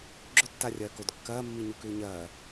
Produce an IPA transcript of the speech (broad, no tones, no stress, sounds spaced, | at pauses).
ɡ͡ǁ ɵ tː a rʲ ɐː k o d kː ɐː mː i ɲ u k ʉː ɲ ɐː